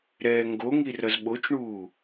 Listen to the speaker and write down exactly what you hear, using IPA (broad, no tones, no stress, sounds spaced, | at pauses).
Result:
ɾ ɛː ŋ ɡ o ŋ i r ʌ z ɓ o t͡ʃ ɳ uː